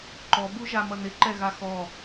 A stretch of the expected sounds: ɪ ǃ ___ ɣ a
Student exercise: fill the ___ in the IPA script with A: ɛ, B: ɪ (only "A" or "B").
A